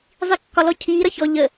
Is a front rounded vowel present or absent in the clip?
absent